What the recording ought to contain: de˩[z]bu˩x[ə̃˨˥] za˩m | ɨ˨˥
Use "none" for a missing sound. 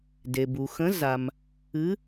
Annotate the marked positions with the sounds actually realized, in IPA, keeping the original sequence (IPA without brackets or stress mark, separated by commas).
none, ə̃˨˥